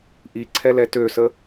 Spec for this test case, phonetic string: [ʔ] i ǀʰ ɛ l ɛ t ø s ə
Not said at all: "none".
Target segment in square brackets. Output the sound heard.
ʔ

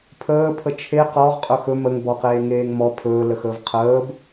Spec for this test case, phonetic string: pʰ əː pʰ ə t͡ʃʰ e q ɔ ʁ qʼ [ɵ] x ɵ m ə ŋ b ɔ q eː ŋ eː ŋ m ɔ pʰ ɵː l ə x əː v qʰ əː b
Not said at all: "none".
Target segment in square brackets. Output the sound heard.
ɵ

